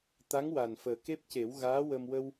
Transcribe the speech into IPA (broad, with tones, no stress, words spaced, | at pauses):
t̪a˧˥ŋwa˨˩nfəː˨˩ ke˦˥p̚ce˨˩˦wɣaː˧˥wə˧m wə˧w